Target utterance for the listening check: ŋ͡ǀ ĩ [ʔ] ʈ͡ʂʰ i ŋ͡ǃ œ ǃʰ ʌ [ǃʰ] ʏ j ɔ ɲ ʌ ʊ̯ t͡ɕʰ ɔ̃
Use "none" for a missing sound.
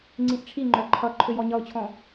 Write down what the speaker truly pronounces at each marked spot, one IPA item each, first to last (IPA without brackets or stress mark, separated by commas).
ʔ, ǃʰ